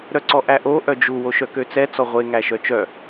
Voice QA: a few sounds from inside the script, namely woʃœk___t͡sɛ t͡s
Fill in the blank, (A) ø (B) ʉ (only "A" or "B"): A